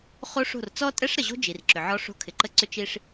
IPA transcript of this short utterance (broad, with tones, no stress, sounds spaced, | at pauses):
χ o˦ ʂ o̤˦˨ r t͡s ɔ˦ tʼ ɛ˦ ʂ ɾ ə˨ ʑ o̤˦ d͡ʒ i˨ r ǁ ʏ˨ ʕ ɔ˦ ʂ o̤˦ kʰ ɪ˨ ǃ ə˦ ǀ ʏ˦ t͡ʃ i˦ ʂ